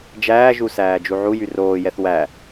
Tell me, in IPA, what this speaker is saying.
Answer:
d͡ʒ æː ʒ u s æː d͡ʒ u ʕ u j y r oː j ɛ θ w æ

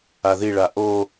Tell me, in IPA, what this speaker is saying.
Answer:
a ð i ɭ a ʔ o

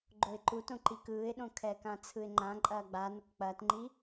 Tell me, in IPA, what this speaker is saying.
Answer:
ɡ͡ǃ o ɪ̯ ǃ u t õ ǃ i k ɯː ɪ̯ ɗ õ kʰ ɛː k ã t͡sʰ ɯ ɪ̯ ŋ͡ǃ ã ǃʼ ɐː ɡ͡b a n ə k k͡p ɐː t ŋ͡ǃ i

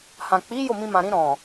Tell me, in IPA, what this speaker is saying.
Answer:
h ã˨ k͡p i˨˦ j o˦˨ m ĩ˧ m ã˨ ɾ ĩ˧ ɾ ɔ̃˨

